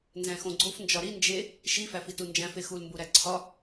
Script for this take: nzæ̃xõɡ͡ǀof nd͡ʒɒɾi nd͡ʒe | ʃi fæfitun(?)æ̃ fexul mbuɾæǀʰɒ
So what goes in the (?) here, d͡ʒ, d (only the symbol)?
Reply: d͡ʒ